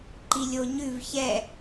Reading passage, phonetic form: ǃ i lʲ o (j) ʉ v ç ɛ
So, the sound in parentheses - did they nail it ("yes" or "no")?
no